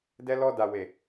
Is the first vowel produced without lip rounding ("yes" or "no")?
yes